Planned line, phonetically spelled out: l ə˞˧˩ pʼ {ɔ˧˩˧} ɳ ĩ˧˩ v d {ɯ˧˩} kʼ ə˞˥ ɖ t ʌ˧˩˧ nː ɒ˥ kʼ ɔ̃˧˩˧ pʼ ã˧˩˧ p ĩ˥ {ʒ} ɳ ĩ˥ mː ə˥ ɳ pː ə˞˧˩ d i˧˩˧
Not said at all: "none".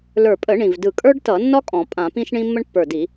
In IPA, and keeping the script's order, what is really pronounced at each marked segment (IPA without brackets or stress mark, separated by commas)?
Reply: ə˧˩˧, ɯ˧˩, ʃ